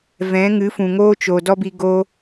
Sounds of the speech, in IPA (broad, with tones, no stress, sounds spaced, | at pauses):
v ɛ̃˨˦ ŋ ɨ˨˦ f ũ˨ ŋ oː˦ t͡ʃ o˨ d ɔ˦ b i˧ ɡ o˦